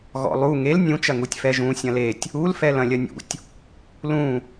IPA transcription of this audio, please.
ɣ ɔ̰ lˠ u ŋ e l nʲ ũ t͡ʃ ɐ ŋ u tʲ f ɛ ʒ ũ sʲ ɐ̃ l e tʲ | u l f ɛ l ɐ̃ lʲ ɐ nʲ ṵ tʲ | l ũ

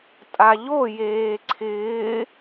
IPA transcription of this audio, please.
tʼ a ʎ o j eː ǀʰ ɪː

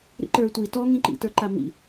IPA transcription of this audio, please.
ɾ ḭ ǃ ə˞ tʷ i t ɔ ŋ ĩ ǃ ḭ t ə˞ ǃ a m ḭ

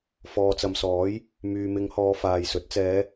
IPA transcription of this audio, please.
f ɔː˨ t͡s ɐ˨ m s ɔː˨˥ j | m yː˨ m ɪ˨˧ ŋ h ɔː˨˧ f aː˨ j s ɵ˨˥ t̚ t͡s ɛː˨˧

